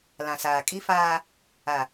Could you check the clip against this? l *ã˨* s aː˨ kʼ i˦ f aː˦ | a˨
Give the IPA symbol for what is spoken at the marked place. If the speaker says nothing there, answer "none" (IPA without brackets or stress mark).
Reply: ã˨